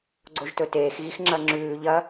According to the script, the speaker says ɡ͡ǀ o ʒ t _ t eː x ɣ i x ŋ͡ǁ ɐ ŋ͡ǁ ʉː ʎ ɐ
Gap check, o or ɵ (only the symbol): ɵ